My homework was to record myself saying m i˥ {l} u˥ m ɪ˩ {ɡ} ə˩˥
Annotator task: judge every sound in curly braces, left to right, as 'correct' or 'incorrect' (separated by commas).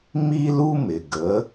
correct, correct